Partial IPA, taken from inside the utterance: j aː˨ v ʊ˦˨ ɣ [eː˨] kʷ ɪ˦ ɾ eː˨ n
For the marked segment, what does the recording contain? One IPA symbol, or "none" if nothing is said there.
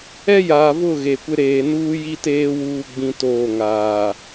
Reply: e˨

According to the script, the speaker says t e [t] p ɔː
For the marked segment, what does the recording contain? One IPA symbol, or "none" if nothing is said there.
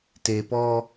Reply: none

